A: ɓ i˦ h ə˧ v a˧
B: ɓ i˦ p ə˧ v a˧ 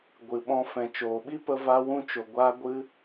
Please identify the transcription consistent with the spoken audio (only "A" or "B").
B